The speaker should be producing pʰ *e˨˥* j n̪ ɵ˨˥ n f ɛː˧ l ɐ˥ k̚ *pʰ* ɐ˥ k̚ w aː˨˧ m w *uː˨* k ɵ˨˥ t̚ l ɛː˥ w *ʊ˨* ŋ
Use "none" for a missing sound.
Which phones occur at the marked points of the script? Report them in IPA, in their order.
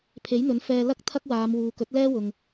e˨˥, t̪ʰ, uː˨, ʊ˨

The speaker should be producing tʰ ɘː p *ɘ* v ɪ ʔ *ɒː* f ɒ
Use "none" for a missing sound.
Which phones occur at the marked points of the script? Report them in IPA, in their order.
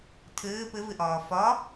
ɘ, ɒː

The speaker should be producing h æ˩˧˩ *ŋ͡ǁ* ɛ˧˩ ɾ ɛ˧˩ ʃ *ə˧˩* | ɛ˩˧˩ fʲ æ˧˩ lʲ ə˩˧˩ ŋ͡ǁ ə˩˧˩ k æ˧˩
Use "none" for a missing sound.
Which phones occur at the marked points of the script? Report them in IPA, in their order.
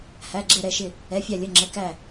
ɡ͡ǁ, ɪ˧˩

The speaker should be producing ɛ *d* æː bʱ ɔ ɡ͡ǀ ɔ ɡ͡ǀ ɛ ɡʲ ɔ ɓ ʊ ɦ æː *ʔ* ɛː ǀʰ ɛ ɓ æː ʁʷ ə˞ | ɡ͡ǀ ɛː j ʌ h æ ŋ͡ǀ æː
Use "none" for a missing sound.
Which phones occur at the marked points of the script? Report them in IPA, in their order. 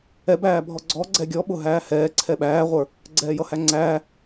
b, h

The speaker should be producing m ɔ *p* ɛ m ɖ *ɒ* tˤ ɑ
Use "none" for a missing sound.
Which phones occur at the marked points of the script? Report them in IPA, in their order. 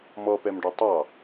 p, ɒ

